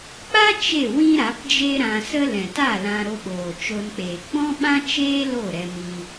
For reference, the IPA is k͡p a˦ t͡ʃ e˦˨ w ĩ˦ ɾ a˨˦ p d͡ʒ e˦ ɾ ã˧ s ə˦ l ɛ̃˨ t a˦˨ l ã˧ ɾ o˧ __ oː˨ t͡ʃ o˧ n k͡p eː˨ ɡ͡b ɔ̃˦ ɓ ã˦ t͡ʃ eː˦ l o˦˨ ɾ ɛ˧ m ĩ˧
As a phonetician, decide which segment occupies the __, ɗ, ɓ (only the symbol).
ɓ